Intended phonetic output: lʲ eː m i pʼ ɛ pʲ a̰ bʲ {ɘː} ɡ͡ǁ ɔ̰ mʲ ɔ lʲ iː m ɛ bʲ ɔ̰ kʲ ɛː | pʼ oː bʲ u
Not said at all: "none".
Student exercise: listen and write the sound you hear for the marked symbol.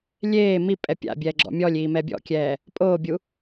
ɛː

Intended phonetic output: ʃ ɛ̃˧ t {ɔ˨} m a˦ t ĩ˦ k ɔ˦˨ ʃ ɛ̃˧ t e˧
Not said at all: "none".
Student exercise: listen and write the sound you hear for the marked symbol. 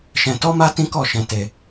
ɔ˦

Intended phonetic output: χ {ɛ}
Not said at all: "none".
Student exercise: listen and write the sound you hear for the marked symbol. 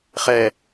ɛ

